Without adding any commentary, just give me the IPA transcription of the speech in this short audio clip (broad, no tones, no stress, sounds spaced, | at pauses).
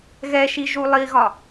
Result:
ɣ ɛ ʃ i ʒ u lˠ i ɣ ɒ